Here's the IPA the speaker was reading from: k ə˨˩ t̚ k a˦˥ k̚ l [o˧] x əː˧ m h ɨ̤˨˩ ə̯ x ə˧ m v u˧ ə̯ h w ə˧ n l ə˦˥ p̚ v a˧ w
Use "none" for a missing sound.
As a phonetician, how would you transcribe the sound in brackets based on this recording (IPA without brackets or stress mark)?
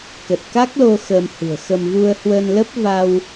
o˧